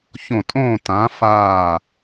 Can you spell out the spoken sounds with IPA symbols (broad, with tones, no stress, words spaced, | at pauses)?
çõ˧˩tʼõː˥˨tãː˨˥ faː˧˩